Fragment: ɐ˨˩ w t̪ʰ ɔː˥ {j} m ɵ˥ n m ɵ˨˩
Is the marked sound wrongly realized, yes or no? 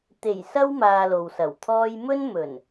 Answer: no